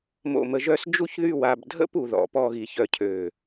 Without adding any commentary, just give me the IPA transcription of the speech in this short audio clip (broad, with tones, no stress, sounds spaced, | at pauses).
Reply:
m o̰˧˩ m ə˧ ʒ œ˥˧ s d͡ʒ u˥ ç ð y˥˧ w a˧ b dʱ ə̰˥ p u˩˧ ð ɔ̰˩˧ p ɔ˥˧ ɣ i˧˩ ç œ˥ cʰ ø˧˩